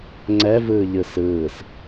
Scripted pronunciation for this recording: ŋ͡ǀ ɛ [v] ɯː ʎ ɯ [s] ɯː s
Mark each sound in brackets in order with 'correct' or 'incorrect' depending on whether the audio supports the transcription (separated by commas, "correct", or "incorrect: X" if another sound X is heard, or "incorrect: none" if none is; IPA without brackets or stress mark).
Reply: correct, correct